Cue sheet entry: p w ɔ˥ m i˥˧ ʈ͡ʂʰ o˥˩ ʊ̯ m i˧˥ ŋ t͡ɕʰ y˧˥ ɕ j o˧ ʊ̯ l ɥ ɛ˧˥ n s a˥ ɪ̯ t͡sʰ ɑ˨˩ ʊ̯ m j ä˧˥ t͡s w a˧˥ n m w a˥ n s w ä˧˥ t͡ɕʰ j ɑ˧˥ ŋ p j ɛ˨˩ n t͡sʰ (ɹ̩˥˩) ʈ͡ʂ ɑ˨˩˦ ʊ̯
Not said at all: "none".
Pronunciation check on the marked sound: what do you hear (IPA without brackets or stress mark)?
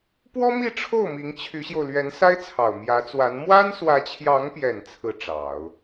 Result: ɹ̩˥˩